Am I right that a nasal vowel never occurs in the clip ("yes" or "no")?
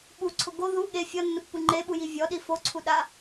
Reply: yes